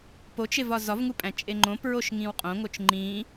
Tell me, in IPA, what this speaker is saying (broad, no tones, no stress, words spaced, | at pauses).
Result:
pot͡ʃevɒ zɒvŋupʼæ̃ t͡ʃʼeŋ͡ǃõ pɹoʃŋĩwqʼõŋot͡ʃ ŋ͡ǃĩ